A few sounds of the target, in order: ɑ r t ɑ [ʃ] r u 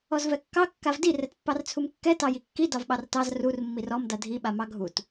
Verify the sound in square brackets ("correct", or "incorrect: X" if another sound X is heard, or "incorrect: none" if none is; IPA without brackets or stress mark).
incorrect: z